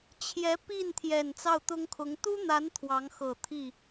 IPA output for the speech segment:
t͡ɕʰ j ɛ˧˥ p i˥˩ n t̪ʰ j ɛ˨˩ n t͡s ɑ˥˩ ʊ̯ t̪ ʊ˥ ŋ kʰ ʊ˧˥ ŋ t̪ u˥ n̪ a˧˥ n t̪ʰ w ɑ˧˥ ŋ x ɤ˨˩ t̪ʰ i˥˩

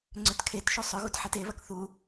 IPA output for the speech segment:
ŋ͡ǀ ʏ t kʰ e t ʃ u sˤ ʏ ɣ u t ħ e t e β ɐ k θ u

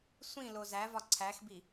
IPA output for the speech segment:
sʷ ĩ l o z æ v ɒ ǀʰ æ x b i

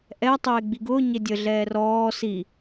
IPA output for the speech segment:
ʔ ɛ tˤ eː ɡ͡b i ɡ ʊː ɲ e dʲ ə ɮ ɛː r ɔː s i

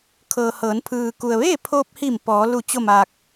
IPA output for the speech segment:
kʰ ɤː˩ h ɤː˩˧ n pʰ ɯː˩ k u˩ ə̯ ʋ eː˥˨ pʰ oː˧ p̚ h i˧˩ m p ɔː˩˧ l u˧˩ t͡ɕ o˥˨ m aː˧ k̚

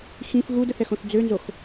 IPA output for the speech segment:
x ĩ f ɣ u d ə θ ɛ x õ θ d͡z ø n z o x

